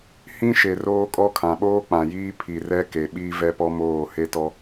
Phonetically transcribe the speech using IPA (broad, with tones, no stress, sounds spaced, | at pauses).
h ĩ˦ ʃ e˨ r oː˦ kʼ ɔ˦ kʰ ã˨ ɓ oː˦ k͡p ã˨ j iː˦ pʰ i˨ r ɛ˦ k e˨ ɓ i˦ v ɛ˦ p ɔ˦ m oː˦˨ h e˦ t ɔ˦